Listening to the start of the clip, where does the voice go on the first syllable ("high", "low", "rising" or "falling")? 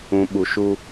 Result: low